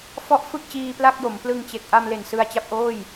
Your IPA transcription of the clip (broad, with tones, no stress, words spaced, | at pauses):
fɔ˦˥ʔ fɯ˥˩k̚t͡ɕiː˧pla˥˩k̚jo˩˦m plɯ˧ŋt͡ɕe˨˩k̚ ʔa˧mle˨˩n sɯ˧a̯t͡ɕa˥˩p̚ʔoː˥˩j